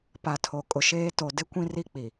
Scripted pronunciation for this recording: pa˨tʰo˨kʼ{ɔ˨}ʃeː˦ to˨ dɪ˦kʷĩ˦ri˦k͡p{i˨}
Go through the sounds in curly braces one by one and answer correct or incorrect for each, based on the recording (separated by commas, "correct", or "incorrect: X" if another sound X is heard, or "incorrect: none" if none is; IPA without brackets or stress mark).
incorrect: ʊ˨, correct